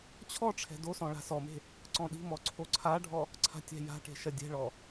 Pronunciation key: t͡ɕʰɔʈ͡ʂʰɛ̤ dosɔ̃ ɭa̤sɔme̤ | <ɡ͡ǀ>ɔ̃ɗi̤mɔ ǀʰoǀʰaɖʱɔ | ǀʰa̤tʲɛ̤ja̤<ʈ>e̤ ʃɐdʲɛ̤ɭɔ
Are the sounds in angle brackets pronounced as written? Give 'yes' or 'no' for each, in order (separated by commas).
no, yes